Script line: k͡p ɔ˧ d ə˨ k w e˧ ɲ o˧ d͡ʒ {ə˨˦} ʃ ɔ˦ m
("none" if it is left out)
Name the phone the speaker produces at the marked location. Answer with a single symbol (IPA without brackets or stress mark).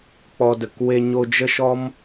ə˦